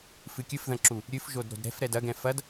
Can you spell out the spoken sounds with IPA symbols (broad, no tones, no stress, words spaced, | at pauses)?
fɨkʲɨfðɐ̃ǁu | ɾʲɨfʒodɾo̤d ɾɛ̤fɾɛd ɐɡɛ̃ fɐd